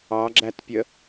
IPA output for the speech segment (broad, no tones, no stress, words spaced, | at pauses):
ɑɡ͡ǁætpʲə